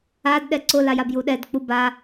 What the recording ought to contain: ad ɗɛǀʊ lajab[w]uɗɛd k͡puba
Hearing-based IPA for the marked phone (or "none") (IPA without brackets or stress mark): j